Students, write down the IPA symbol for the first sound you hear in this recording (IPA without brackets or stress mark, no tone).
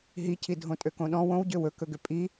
ɦ